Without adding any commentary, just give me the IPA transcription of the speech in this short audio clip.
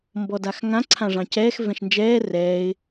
m b ɔ d a x ŋ ã ǀʰ ã ʐ ɑ̃ c ɛː x v ɛ̃ ʃ n d͡ʒ ɛː r ɛː ɪ̯

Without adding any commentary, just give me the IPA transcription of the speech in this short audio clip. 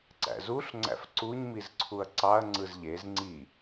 ǀ æ̰ z u ɬ ŋ͡ǀ æ̰ f ǀ u ɲ m i z ǀʰ u ɐ̯ ǀ ɑ ɐ̯ ŋ͡ǀ ɯ z ʎ e z ŋ͡ǀ i

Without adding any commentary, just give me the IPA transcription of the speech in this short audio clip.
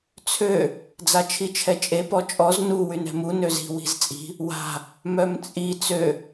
t͡sʰ ø | d͡z a t͡ʃʰ i t͡ʃʰ ɛ t͡ʃʼ e p ɔ t͡ʃʼ ɔ z n u w y n ɛ̤ m u n ø z i̤ w i̤ z t͡sʼ i̤ | w a̤ | m œ m t͡sʼ i t͡s ø

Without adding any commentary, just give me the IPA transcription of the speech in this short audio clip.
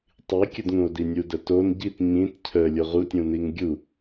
tˤ i kʲ ə d ŋ ũ o̯ d i nʲ u d ə t o n ɟ i t ɲ ĩ t cʰ ə lʲ o ʁ u tʲ ũ n i ŋ ɡʲ u

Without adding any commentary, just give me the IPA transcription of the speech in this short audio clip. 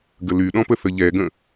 ɡ ə l y ɗ ɔ̃ p ə θ ə ʎ ɛ ɡ ə̃

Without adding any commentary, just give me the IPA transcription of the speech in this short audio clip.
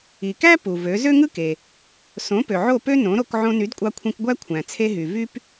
i˩ k æ˥ p u˩ v ø˩˥ z ø˥ ŋ ɯ˥ k e˩ | s õ˩˥ p ø˩ ʕ o˥˩ p ø˥ n õ˩˥ ɾ o˧ k ʕ õ˧ n y˩˥ d kʷʼ ɑ˧ kʷʰ ĩ˧ k ɡʷ æ˥ kʷʰ æ̃˩ t͡sʰ e˧ ɦ y˩ v y˥ p

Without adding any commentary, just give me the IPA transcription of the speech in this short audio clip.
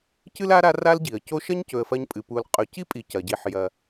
c ɨ˥ l a˥ ɾ a˦ r a˥ l ɟ i˩ ə̯ c o˦ ʃ ɐ˥ ɲ c ɵ˨ ə̯ f ɐ˦ ɲ pʼ ɨ˩ p u˨ l qʼ ɵ˨ c i˥ pʼ i˨ c ɐ˩ ɟ i˨ ħ j ɐ˩

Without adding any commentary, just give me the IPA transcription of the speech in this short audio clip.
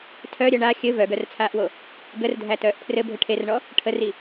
tʰ œ ɾʲ œ ɳ a xʲ ɘ v œ ɡ œ r t͡sʰ aː ʔ w o | ɡ ə r dʱ æ t œː ʔ pʰ r ɘ bʱ ɘ ʈʰ e r ɳ ɔ | ʈʰ ə r i

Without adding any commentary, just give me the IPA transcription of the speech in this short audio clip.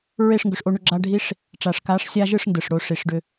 ɹ e˦˨ ʂ ŋ ɡ ʏ˨ ʂ ʔ o˧ ɳ ʏ˧ ɡ͡ǁ a˧ ɖʱ i˦ ʂ | ʈ͡ʂ a˨ ʂ k a˨˦ ʂ sʲ a˧ ʒ ɯ˦˨ ʂ n d ɯ˨ ʂ ɽ o˧ ʂ i˨ ʂ ɖ ʏ˧

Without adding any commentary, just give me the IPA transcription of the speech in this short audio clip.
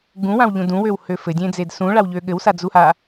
ɡ ũ w ã w ʎ ũ d ũ w ø w h ø f ɘ dʲ ẽ d͡z e d s ũ ɭ a w ʎ ø ɠ ɘ w s a d͡z u h a

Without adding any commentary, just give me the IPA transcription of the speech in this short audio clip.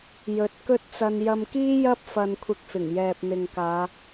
j ɵ˨˥ t̚ k ɵ˥ t̚ t͡s ɐ˧ n j ɐ˧ m k iː˥ j ɐ˥ p̚ f ɐ˧ n kʷʰ ɪ˧ k̚ f ɪ˨˩ ŋ j ɛː˨ p̚ n̪ ɪ˨ ŋ k aː˨˧

